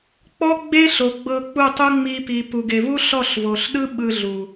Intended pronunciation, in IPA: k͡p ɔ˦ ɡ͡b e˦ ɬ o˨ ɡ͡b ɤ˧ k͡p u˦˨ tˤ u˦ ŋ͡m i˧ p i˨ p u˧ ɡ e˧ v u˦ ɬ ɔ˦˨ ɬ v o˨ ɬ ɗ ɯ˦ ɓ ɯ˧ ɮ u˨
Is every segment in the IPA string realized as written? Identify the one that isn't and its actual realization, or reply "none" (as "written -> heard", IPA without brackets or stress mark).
none